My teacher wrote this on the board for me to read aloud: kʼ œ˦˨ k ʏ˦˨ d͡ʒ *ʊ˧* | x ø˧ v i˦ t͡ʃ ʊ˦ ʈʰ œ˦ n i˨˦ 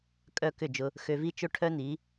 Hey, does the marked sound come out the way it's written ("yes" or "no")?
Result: yes